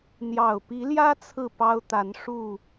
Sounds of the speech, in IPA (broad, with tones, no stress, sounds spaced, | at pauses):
n̪ j ɑ˨˩ ʊ̯ p i˨˦ l j ä˦ t͡sʰ ɹ̩˥˨ p ɑ˦ ʊ̯ t̪ a˨˦ n ʂ u˥˨